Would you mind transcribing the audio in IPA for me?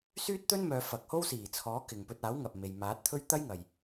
syː˥t̚t̪ɵ˥nmœː˨˧ fɐ˨k̚ho˥wsiː˨˩t͡sʰɔː˨˥ kɪ˨ŋpɵ˧t̚ aː˨˥wŋɐ˨p̚me˨j maː˨˥t̚t̪ʰɵ˥ɥ t̪ɐ˥jŋɐ˨j

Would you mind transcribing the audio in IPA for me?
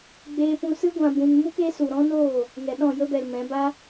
ɡ͡beː˧pũ˧sɨ˦ ɡʷã˧bũ˧nmu˦k e˨˦su˨ɾɔ̃˦noː˦˨ | ŋɛ˨ɗɔ̃˦˨jə˦bɛ˨l mɛ̃˨˦ba˦

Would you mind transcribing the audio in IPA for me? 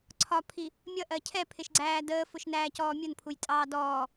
ǀʰɒpʰi | mʲʌʔɜ cʰɛpʰɪʃɡ͡ǀæː dəːfʊʃnæːcɔː mʲʊnpʰujtʼɑː dɔː

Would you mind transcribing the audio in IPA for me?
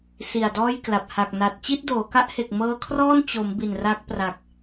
si˨˩a̯dɔː˥˩jkla˨˩p̚ ha˨˩k̚na˨˩t̚ t͡ɕi˥˩t̚doː˩˦ka˦˥ʔhe˨˩k̚ mɤː˧kʰrɔː˥˩n t͡ɕo˩˦m bi˨˩nra˦˥k̚ pra˨˩k̚

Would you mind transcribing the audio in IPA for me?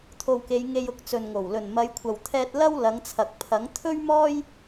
t̪ʰo˨wke˨˧j ŋe˧jʊ˧k̚t͡sɵ˨nŋo˨˩w lɵ˨˩nmɐ˨˧jkʷʰɐ˨wt̪ʰɛː˧t̚ lɐ˥w lɐ˨˧ŋt͡sʰɐ˨k̚pʰɐ˨˥ŋ t̪ʰɵ˥ɥmɔː˥j

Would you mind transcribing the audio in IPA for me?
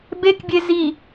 bekbʲe zi

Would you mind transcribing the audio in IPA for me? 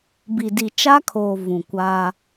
bi˨di˨t͡ʃa˦kʰoː˨ vũ˨kʷaː˦

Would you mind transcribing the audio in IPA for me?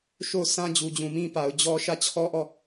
ʃo˦˨ʊ̯sã˦ d͡ʑu˨d͡ʑũ˨mĩ˦pa˨ʊ̯ d͡ʑɔ˦ ʃä˦˨t͡ɕʰɔ˦ʔɔ˦˨

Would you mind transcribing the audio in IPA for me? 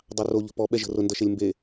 dˤɑro ʎə̤pɔ ɓɛʒə̤rʊ ndʌʃelʲmbe

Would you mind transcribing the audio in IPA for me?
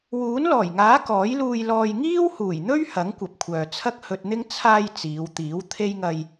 wuː˨˥nlɔː˨˩jŋaː˨˥ kɔː˨˥jluː˧jlɔː˧j ŋiː˥whuː˨˩jn̪ɵ˥ɥ hɐ˨˥ŋkʷɐ˨p̚kʷʰœː˨ t͡sʰɐ˥k̚hɵ˧t̚n̪ɪ˥ŋ t͡sʰaː˧j t͡siː˨˧wt̪iː˨˥wt̪ʰe˥j ŋɐ˧j

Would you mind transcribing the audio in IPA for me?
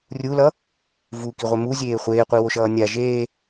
rʲulʌ | vukiʁʷe muzʲeː χʷeːqʷiwoʃʌː nʲa ʒeː

